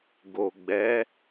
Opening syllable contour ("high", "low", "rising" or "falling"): low